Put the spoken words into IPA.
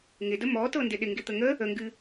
ŋ ɪ d ə m ɔ t ɤ n d ɪ ɗ ɪ ŋ ɡ ɪ t̪ ə ŋ ə | ə ŋ ɡ ɨ

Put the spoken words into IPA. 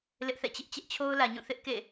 l ɪ˦ ʔ θ ɛ̰˦˨ t͡ɕ ɪ˦ ʔ t͡ɕ ɛ˦ ʔ t͡ɕʰ o˦ ʊ̯ l ä˨ ɲ ũ˦˨ θ ɪ˦ ʔ k ḛ˦˨

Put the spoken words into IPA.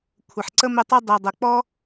kʷʰ ə˩ ħ ǀ ə˥ m ɪ˦ tˤ ɪ˥ dˤ i˩ dˤ ə˩ k͡p ɔ˥

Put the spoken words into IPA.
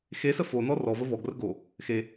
x e s ə f o n ɔ r ɔ v ə v ɔ ɡ r ə ɡ o | x e

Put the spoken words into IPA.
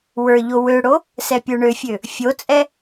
w ə˞ ʎ o w ø ɽ o | s ɛ pʲ ə˞ ɳ ø fʲ ø | fʲ o t͡sʼ ɛ

